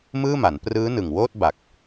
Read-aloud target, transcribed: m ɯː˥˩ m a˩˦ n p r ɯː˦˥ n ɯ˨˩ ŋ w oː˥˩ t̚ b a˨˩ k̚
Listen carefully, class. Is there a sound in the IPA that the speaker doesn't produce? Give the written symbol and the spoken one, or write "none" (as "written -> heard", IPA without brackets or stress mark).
none